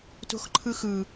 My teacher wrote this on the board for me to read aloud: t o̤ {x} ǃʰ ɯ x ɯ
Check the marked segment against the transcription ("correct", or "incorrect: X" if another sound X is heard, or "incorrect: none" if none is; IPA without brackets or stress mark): correct